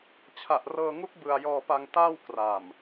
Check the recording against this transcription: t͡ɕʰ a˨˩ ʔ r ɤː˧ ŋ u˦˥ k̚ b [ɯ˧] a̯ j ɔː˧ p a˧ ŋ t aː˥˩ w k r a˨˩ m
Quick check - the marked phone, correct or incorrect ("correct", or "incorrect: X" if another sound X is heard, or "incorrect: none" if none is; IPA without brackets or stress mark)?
correct